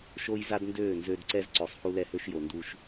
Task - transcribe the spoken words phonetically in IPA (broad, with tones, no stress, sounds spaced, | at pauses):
ʃ o˦ j z a˦ d n d øː˦˨ n z ø˦ d ǀ ɛ˦ z ǀ ø˨ sˤ h u˦ l ɛ˦ h ø˦ ʃ j o˨ n d u˦ ʃ